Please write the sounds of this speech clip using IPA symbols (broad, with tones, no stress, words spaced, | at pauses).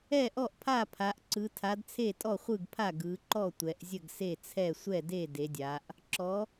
ɛ˥˩ʔɔ˥˩ʔpʰa˥˩pʰa˩˧ʔ ǀɯ˩˧tʰa˩˧d t͡sʰe˥˩tʼɔ˥˩χʷɯ˥˩ɡpʰa˥˩ ɡɯ˩˧ǃɔ˥˩ tʷɛ˩˧ʔzʲə˥˩ɡ se˥˩t͡sʰɛ˥˩ sʷɛ˥˩de˥˩ de˩˧dʲa˩˧ʔ | ǁɔ˩˧